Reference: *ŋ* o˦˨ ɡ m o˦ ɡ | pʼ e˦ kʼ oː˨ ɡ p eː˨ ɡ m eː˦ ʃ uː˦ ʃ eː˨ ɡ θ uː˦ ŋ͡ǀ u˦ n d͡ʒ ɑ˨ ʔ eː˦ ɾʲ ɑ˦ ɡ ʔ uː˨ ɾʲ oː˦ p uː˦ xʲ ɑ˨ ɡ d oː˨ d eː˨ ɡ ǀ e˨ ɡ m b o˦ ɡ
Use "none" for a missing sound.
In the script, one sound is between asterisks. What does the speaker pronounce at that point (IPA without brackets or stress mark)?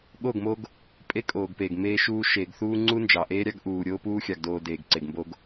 ɠ